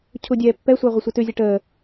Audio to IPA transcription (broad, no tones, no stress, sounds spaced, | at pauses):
cʰ u dʲ ɛː pː ɛ sʷ əː ʁʷ ə sʷ ə t ʉ zʲ ɘ ʈ əː